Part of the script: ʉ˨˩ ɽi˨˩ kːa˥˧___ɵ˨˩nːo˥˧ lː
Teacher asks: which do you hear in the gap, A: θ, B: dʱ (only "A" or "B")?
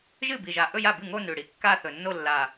A